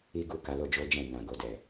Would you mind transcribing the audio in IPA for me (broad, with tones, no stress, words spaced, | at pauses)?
i˦ɡu˦˨ ka˨˦lo˦d͡ʒo˦d͡ʒɛ̃˦˨ nã˨ɡo˨dɛ˨